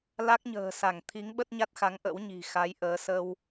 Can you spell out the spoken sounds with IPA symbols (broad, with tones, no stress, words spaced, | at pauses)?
la˦˥k̚ɲə̤ː˨˩sa˧˩ŋ t̪ʰi˨˦ŋɓə˦˥t̚ɲa˦˥t̚xa˨˦ŋ ʔə̰˧˥wɲi̤˨˩xa˨˦jʔəː˨˦ sə˧w